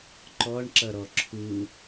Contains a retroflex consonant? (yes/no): yes